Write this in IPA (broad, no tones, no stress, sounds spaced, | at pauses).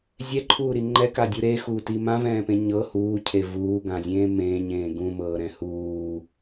zʲ ɛ ǃʰ uː ɾ i ŋ͡ǃ ɛ k a dʲ u ɾ e x uː t i m ã v ɛ̃ː p ẽ ɲ ɤ h uː cʰ e v uː ɡ ã zʲ ẽː m ẽ ɲ ẽː ɡ ũ m ɤː ɾ ɛ̃ h uː